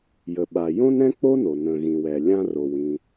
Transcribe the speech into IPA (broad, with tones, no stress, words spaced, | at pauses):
jə˩ɓa˩ jõ˥nɾɛ̃˥k͡po˥no˩ nə̃˩ ɣĩ˩wɛ˩ lʲã˥ro˩w ĩ˩